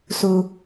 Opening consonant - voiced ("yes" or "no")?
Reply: no